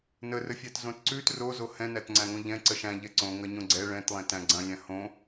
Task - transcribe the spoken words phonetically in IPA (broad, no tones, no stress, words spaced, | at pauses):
nərəfʲætzõt ǀʉt rozo hɛ̃nætŋ͡ǀæ̃ŋõ ʎɛ̃ǀə ʃæ̃ʎɛ ǀõŋɐɲõ ɡ͡ǀɛ ɭɛ̃tlˠɛ̃tæ̃ ɡ͡ǀɐ̃lʲæ̃ hõ